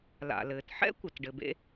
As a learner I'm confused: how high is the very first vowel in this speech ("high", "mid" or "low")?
low